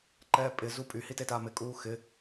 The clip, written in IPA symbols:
ǃɛːpʼɪ zupʼy hitetamɪ kʼuːxɪ

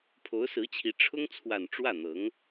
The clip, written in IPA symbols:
pʰo˧˥ʊ̯sɹ̩˧˥t͡ɕʰi˧˥ ʈ͡ʂʰʊ˥ŋt͡sʰwa˨˩n ʈ͡ʂwä˥˩n̪ɤ˧˥ŋ

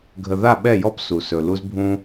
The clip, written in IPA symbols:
ɡʱə˨ða˦˨ɓɛ˦˨jɔ˦p su˨sɵ˨ lu˦zbʱũ˦

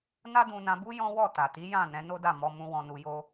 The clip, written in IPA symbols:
na˦dũ˧nã˧bu˦ jɔ̃˦wɔ˦˨ ta˨ti˨˦ jã˦˨ nɛ̃˨˦no˦da˦˨ mɔ˧mũ˧ wɔ̃˧nu˧jo˦

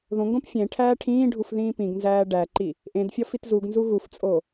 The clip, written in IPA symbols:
ðõŋɡõp fʲẽ ʈʰæːʈʰĩːɖʱuf ðĩːpĩɡnzæː ɖæǃi | ʔẽd fʲɒfitzuɡnzu ɣuft͡sʼo

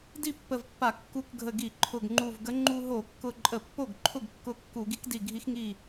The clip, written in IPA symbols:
di˥˩ pːə˧˩vpːa˧˩˧ kːu˧˩k ɡʱə˧˩ɡi˧˩˧ ǃʰʊ˧˩ɡŋ͡ǃu˧˩vɡə˧˥ ŋ͡ǃu˧ɦo˧˩˧kːʊ˧˩ǃʼə˧˩˧ pːo˥˩ɡ ǃʰʊ˥˩ɡkːʊ˧˩ kːu˧˩˧ ɡi˧˥kdi˧˩ɡʱi˧˥x ŋi˥˩

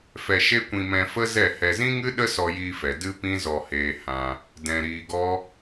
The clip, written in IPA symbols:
fɛ˧ʃe˦kʷĩ˧ mɛ̃˧fə˦zɛ˦˨hɛ˧ zĩ˦ŋɨ˦ɗə˦ sɔ˧jiː˧fɛ˨ dɨ˦pĩ˦zɔ˧heː˧ hã˧ | dɛ̃˧ ɾiː˧ɡɔ˦

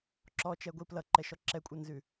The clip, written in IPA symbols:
ǁɔt͡ʃɛɡʷi plʌǃɛʃɔ ǁɛkʷʼʌnzʉ

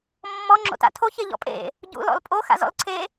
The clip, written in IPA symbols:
mːɔ ŋ͡ǁo̰ta̰tʰo çeʎɔ̰pʼḛ | ɟṵ lɔ̰lpʼo xa̰zɔ̰lǀʰe

